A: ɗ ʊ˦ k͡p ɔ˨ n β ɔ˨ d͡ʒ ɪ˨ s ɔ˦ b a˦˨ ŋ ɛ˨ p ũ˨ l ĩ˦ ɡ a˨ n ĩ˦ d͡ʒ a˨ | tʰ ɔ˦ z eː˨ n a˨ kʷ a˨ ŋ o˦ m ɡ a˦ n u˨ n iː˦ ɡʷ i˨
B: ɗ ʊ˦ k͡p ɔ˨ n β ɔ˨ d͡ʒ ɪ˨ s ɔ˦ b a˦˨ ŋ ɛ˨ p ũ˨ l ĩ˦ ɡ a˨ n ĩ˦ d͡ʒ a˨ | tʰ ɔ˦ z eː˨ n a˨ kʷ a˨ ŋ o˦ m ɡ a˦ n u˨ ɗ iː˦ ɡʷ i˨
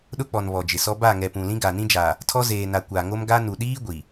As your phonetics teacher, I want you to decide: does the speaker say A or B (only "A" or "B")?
B